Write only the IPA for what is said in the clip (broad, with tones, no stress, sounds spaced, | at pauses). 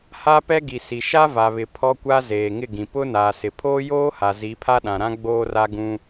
h a˦ p ɛ˦ ɡ i˨ s i˨ ʃ a˦ v a˨ β ɪ˨ pʰ ɔ˦ kʷ a˦ z eː˨ ŋ ɪ˦˨ ɡ ĩ˨ p ʊ˦ n aː˨ s ɪ˨ pʰ oː˦ j oː˦ h a˨ z i˨˦ pʰ a˦ ɗ ã˨ ɾ ã˦ ɡ͡b oː˦ r a˦ ɡ ũ˦